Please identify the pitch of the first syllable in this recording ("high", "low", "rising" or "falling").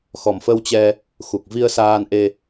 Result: low